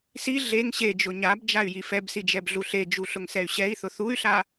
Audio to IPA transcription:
s i ɮ e ŋ ɕ e d͡ʒ ʊ ɲ a b d͡ʒ a y̯ j i f ɛ b s i d͡ʒ ɛ b ɮ u ɬ e d͡ʒ u ɬ ʊ ŋ s ɛ y̯ ɕ ɛ i̯ θ ʊ θ u y̯ ɬ a

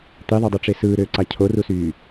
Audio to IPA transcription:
t̪ i ðˤ ø dˤ y ʈ͡ʂ e s ɯː ɾ øː ǀ ɑ cʰ o r u s yː

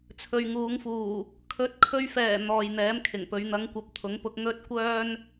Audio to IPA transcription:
t͡sʰ ɵ˨ ɥ ŋ uː˨˧ ŋ f uː˨˩ | kʰ ɵ˨˥ t̚ kʰ ɵ˧ ɥ f ɛː˨˩ n̪ ɔː˨ j n̪ ɛː˨˥ m kʰ ɪ˨˩ ŋ p ɵ˨˧ ɥ n̪ ɐ˨˧ ŋ kʷ ɐ˨ p̚ t̪ʰ ʊ˨˥ ŋ p ʊ˧ k̚ ŋ ɵ˥ t̚ kʷ œː˥ n

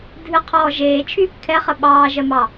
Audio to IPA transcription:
dʱ ɨ qʰ ɔː ʒ eː t͡ʃʰ yː p kʰ ɛ χ ə ɓ ɑː ʒ ɜ m ɑ

